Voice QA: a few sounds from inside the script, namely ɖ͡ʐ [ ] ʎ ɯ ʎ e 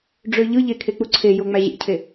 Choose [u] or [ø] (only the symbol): ø